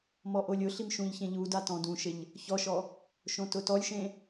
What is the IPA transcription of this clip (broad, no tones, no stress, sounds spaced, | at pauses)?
m ɔ ʔ o lʲ ʊ ɬ i m ʃ ũ ʎ ç ẽ ʎ u d a t ɔ̃ d ũ ʃ ɪ ʎ | ç ɔ ʃ ɔ | ʃ õ t ʊ t ɔ lʲ ʃ ẽ